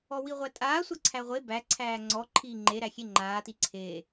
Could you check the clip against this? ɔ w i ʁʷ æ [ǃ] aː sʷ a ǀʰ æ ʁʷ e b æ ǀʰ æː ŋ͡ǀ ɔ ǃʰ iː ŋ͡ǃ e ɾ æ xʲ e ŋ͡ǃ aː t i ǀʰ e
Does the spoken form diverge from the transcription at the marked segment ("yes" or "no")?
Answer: yes